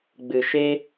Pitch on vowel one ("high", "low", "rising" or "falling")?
low